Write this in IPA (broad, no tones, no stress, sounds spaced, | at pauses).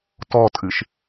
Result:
t ɔ tʼ ɨ ʃ